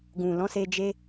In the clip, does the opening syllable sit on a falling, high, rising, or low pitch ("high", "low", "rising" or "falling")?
low